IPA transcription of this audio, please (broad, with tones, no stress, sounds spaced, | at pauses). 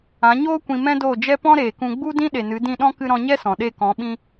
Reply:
ã˨˦ ɲ oː˦ kʷ ĩ˧ m ɛ̃˦ d oː˦˨ d͡ʒ ɛ˦ p ɔ̃˦ ɾ eː˨ k ũ˧ ɡ͡b u˦ d ĩ˦ ɗ e˨ n ɨ˨˦ d ĩ˦˨ ɗ ɔ̃˦ k ɨ˧ ɾ ɔ̃˧ ɲ ɛ˦ s ɔ̃˨ ɗ e˦˨ k ɔ̃˨˦ ɓ ĩ˧